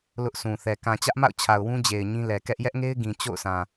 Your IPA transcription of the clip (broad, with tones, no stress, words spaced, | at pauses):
lʊ˦ʔsʰũ˨ θɛ˨ kã˨t͡ɕä˦ʔma̰˦˨ʊ̯t͡ɕʰa˨ʊ̯ wũ˦d͡ʑe˨ɪ̯ ɲĩ˦ lɛ˨kɛ˦ʔ jɛ˦ʔŋe˦ɪ̯ ɡĩ˨ t͡ɕo̰˦˨ʊ̯sã˨